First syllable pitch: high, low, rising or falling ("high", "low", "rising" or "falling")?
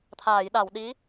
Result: low